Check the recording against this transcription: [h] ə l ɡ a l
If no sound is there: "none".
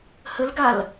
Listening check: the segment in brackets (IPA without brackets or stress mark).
h